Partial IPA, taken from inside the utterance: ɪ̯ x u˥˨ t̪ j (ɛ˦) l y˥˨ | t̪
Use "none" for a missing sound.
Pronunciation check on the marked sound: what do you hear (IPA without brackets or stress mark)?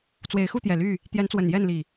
ɛ˨˩